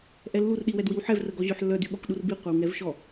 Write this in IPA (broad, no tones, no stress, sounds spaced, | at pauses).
ʔ ɛ lː u r ɗ i w ɛ d w i w ħ ɛ v r ə ɡ ɔ ʑ ø ħ lː œ d y ɠ ɔ k ɗ u r b i qʷ œ w ŋ ɛ v ʃ ɔ